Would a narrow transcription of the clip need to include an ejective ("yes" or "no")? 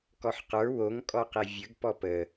yes